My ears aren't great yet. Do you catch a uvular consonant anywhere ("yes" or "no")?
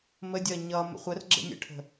yes